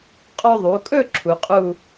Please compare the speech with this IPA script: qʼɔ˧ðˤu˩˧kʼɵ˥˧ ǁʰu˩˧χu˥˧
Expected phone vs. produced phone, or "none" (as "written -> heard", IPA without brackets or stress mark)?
χ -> qʼ